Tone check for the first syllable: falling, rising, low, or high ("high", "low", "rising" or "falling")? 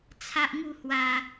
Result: high